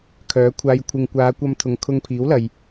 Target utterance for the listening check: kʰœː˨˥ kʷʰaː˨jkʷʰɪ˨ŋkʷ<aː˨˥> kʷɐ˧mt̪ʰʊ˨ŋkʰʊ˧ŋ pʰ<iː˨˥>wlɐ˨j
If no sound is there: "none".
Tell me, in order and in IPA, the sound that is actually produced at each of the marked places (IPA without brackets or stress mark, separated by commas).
aː˨˧, iː˨˥